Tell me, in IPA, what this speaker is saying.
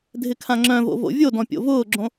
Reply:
dʱ ɪ kʰ ã ŋ͡ǁ œ̃ v o̰ v o̰ vʲ o d ɔ̃ pʲ o̰ v ʊː ɡ͡ǁ õ

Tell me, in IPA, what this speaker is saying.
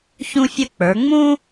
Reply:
ç ũ˥ fʲ ə˥ k͡p ə˞˩˧ ŋ͡m ũ˥

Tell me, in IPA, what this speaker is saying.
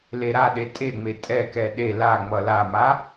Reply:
l e ɾ a ɗ e tʼ e ŋ͡m e tʼ ɛ k ɛ ɗ e l a ŋ͡m ʌ l a m a

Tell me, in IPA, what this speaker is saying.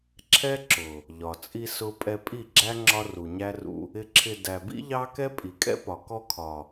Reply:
ǁʰ ɛ˦ ǁ ʊ˨ | ʎ ɒ˨ t͡sʼ i˧ s ʊ˦ pʼ ɛ˧ pʼ i˦˨ ɡ͡ǁ æ˦ ŋ͡ǁ ɒ˦ r u˨ ɲ æ˦ r ṵ˧ | ɪ˧ ǁʰ ɪ˧ d æ˨ b ḭ˦ ʎ ɑ˦ k ɛ˦ pʼ i˨ kʼ ɛ̰˦ p ɒ˨ k ɔ˧ kʰ ɒ˨

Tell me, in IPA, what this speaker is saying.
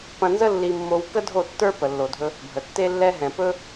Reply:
p ɐ̃˧ n z ə˦ lː i˧ mː o˧ w k ə˦ dʱ o˦˨ tː ə˞˦ p ə˨ lː o˨ dʱ ɵ˧ | bʱ ə˨ tː e˦ lː ɛ˦ ɦ ɛ̃˨ p ɵ˦

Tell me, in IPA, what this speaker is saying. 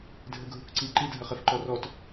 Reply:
dʱ ɘ ɡʱ u k ǀ i ǃ i dʱ ɐ χ ɛ f ǃ ɔ r ɔ t

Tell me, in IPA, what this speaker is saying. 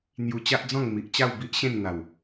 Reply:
n̪ j u˧ t͡ɕ a˦ ʔ d͡z ɔ̃˥˧ ŋ m i˨ ʔ t͡ɕ a˥˧ w b i˦ ʔ ɕ ẽ˥˧ n n̪ a˨˩ w

